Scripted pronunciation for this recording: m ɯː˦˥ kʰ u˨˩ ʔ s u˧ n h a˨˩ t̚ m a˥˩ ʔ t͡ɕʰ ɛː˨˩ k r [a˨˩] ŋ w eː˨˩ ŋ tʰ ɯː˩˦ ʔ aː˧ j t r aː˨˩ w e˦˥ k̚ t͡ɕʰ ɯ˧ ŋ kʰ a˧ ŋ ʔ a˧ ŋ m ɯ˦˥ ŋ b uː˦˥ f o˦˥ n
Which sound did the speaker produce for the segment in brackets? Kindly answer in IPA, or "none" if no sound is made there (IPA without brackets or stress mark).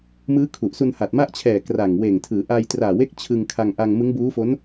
a˨˩